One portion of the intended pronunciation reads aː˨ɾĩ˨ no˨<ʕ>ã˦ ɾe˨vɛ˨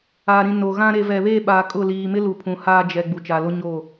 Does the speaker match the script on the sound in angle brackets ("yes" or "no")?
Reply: no